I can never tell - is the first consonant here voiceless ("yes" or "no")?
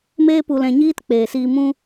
no